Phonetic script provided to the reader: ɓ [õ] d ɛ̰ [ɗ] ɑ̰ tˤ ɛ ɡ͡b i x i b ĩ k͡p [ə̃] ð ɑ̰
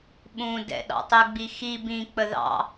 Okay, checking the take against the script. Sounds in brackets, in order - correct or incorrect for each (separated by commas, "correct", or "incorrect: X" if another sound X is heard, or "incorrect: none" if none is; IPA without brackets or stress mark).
incorrect: ũ, correct, incorrect: ə